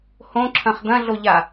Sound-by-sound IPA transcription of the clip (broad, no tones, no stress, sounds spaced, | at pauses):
h õ ǁʰ ɐ̃ χ d̪ ɐ̃ ɮ o ʎ a